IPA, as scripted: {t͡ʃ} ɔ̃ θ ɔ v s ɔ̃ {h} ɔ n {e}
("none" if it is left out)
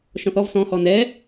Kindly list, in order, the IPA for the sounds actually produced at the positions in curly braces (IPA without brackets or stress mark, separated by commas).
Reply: ʃ, h, ɛ